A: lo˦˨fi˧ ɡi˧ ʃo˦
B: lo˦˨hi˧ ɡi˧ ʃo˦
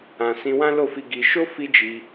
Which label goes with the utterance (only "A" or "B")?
A